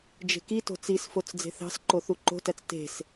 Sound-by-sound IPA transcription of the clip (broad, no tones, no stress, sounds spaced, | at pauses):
d͡ʒ e̤ k i t o̤ t͡s i s f o t͡s d͡z e̤ θ ɑ̤ s ǃ o θ u ǃ o̤ t æ t͡s t e̤ s